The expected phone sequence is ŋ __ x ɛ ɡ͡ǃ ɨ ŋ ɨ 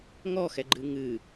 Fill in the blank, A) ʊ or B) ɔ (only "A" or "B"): B